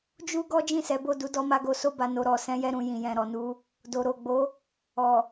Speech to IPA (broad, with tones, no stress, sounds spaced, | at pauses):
d͡ʒ u˦ ɡ ɔ˦ d͡ʒ ĩ˦˨ s ɛ˨˦ b o˦˨ d u˨˦ d ɔ˧ m a˧ ɡ o˧ s o˦ b a˧ n o˨ ɾ ɔ˨ s ɛ̃˧ j ɛ˧ ɾ ũ˨ j ĩ˨ j ɛ̃˨ ɾ ɔ˨ n u˧ | d o˨ ɾ o˨ ɡ͡b o˨˦ | ɔ˨